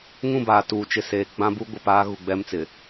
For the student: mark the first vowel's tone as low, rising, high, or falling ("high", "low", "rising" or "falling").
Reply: falling